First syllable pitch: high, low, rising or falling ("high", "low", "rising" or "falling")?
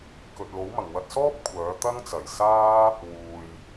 low